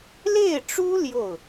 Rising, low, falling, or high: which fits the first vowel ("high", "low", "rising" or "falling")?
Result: falling